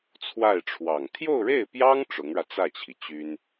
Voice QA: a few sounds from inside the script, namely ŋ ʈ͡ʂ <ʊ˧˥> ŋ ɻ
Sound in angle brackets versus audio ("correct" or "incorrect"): correct